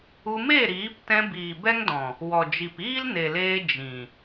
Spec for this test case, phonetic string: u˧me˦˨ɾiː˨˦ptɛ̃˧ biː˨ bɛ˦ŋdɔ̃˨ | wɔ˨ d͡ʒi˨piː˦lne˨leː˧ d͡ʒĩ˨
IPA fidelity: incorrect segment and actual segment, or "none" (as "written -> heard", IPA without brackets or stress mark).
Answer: none